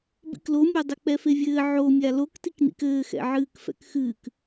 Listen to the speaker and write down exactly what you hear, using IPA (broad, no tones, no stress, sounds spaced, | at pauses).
b ḭ k l o mʲ ɔ dˤ ɘ k͡p ɛ f e vʲ ɘː ʕ o mʲ a l o k t i k n ḭ k ɘː x ɛ̰ ʕ ɨː k f ɛ̰ k x ɨː k